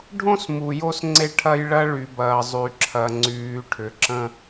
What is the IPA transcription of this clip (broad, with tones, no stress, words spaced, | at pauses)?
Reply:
ɖʱõ˦smu˨jo˦s ŋ͡ǀe˦ ʈʰɐ˦jɭɐ˦ɭy˨bɐː˨ zˤy˨ǁʰɐ˨ ŋ͡ǀyː˨ʈʰʏ˨ǁə̃˦